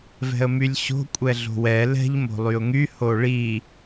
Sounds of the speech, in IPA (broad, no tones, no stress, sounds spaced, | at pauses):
v ɛ̤ ə̯ m y lʲ ɕ o̤ kʷʼ ɛ ɮ o̤ w ɛ l ɛ̤ ʎ m o̤ lˠ y ʊ̯ ŋ y h o ɭ i